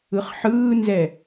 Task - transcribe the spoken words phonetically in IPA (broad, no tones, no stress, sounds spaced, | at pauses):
ɯ χ ħ ɯː n z ɛ